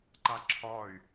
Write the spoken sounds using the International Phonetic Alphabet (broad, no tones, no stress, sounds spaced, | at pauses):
ǃ a ǁʰ ɒ y̯